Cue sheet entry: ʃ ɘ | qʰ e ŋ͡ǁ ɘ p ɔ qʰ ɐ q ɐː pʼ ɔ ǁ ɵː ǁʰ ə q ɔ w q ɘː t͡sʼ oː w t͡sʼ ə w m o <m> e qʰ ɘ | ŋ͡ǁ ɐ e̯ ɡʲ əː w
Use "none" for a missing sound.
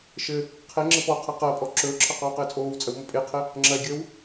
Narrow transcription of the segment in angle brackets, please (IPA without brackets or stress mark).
pʼ